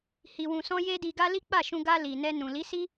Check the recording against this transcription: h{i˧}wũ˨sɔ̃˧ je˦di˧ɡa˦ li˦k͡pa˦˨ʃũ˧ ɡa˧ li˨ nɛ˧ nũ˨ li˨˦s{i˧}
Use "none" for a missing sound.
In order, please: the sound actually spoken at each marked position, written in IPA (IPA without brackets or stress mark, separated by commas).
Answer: i˨, i˦